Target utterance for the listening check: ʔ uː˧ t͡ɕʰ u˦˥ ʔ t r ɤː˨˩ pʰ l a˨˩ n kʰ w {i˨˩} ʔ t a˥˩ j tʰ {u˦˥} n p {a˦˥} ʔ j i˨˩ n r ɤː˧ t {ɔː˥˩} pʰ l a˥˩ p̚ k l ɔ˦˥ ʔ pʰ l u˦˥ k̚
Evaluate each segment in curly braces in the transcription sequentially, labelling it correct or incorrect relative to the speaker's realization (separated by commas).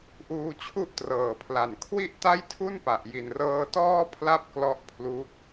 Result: incorrect, incorrect, incorrect, correct